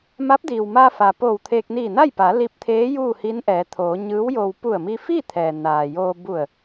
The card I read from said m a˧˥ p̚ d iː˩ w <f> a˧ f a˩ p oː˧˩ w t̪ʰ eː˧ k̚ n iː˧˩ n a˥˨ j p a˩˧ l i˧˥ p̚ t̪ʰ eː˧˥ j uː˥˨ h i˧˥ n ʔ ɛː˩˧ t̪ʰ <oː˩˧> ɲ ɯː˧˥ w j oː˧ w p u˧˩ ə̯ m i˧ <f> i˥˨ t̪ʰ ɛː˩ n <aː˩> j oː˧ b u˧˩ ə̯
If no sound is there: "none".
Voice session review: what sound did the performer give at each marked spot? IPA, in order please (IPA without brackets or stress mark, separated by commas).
m, oː˩˧, f, aː˩